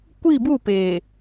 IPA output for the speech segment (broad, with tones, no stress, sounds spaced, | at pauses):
kʷ i˦˨ b u˦˨ p eː˨